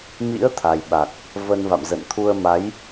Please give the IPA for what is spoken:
m ḭ˧˥ ə̯ t̪ʰ a˨˩ j ɓ a˨˩ k̚ | v ə˧ n v a̰˧˨ m z ə̰˧˨ n t̪ʰ u˧ ə̯ m a˨˦ j

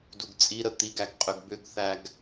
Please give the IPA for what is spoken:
d u ɡ t͡sʼ i ɾ ə t̪ i ɡ æ ɡ qʼ ʏ ɡ b ʏ ɡ θ æ ɡ

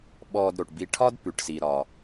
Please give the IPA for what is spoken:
ɓ ɔː˨ d ɾ o˩ ʈ b i˨ ʈʰ ɒ˦ d p ʉ˩ ʈ s i˩ ɾ ɒː˩

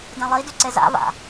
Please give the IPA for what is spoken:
d ẽ lˠ i d y ǀ e z a̰ v a̰

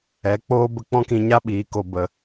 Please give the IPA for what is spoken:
ɛ˨˦ k͡p oː˦ b ə˧ k͡p ɔ̃˦ k ĩ˧ ɲ a˦ ɓ iː˨˦ k o˧ b ə˧

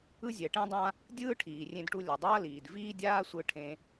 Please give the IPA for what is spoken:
ɯ˥ zʲ ɛ˩ ʈ ẽ˥ dˤ ã˥ | dʲ ɯː˥ ʈʰ iː˩ rʲ ẽ˧ d ʈ u˧ lʲ ʌ˩ dˤ ʌː˥ l iː˩ d v iː˥ dʲ aː˥ sʷ ɯ˧ ʈʰ ẽ˧

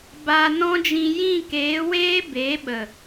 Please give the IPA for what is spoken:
b a˧ n ɔ̃˦ d͡ʒ ĩ˧ j ĩ˦˨ k eː˨˦ w eː˦ b e˨˦ ɓ ə˨

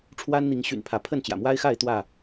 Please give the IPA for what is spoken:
ʈ͡ʂʰ w a˦ n n̪ i˨˦ ŋ ɕ y̰˨˩ n pʰ ä˨˦ pʰ ə˥˨ n t͡ɕ j ä̰˨˩ m w a˦ ɪ̯ x a˥˨ ɪ̯ t̪ w ä˥˨

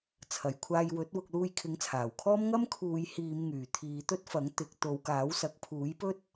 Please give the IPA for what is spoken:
t͡sʰ ɐ˨ j kʷʰ aː˧ j w ɵ˨˥ t̚ w ʊ˧ k̚ l uː˧ j kʰ ɪ˨˥ ŋ t͡sʰ aː˨˩ w kʰ ɔː˥ m ŋ ɐ˥ m kʰ uː˨˧ j h iː˨˧ m ŋ yː˨˩ t̪ʰ iː˨˧ t̪ ɵ˥ t̚ f ɐ˨˥ ŋ t̪ ɪ˨ k̚ t̪ o˨˧ w k aː˨˥ w s ɐ˨˥ k̚ pʰ uː˨˥ j p ɵ˥ t̚

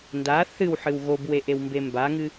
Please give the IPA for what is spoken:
n d a θ ɨ w ħ ɨ w ɣ o b w e ʔ e w m b e m b a ŋ ɨ

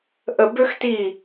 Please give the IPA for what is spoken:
ʔ ə˧ b ø˥ x t i˥˩

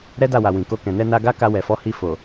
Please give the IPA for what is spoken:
ɾ ɛ˦ d a˦˨ w a˨ w ĩ˨ k o˧ k ɛ̃˨ n ɛ˧ n a˧ ɡ a˦ k a˧ w ɛ˨ f ɔ˨˦ h i˧ f o˨

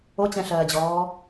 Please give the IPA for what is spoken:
o t͡ɕ ɛ̃ ɬ ɜː d͡ʑ ɔː

